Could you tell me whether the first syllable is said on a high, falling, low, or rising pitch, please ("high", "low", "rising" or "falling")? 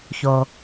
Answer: low